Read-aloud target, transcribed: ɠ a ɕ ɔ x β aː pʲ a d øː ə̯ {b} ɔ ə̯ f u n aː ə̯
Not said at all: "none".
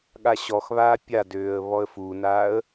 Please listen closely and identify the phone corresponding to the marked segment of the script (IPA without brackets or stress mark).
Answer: β